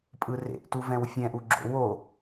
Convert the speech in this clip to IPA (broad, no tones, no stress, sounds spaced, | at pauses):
pʼ ɯ r ḛ ʔ t u v ɛ̃ w fʲ ɛ̃ ʔ u ɡ͡ǁ o̰ w o